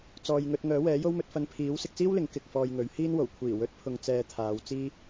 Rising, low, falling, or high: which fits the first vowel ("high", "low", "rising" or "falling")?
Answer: low